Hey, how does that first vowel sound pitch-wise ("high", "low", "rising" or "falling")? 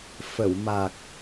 low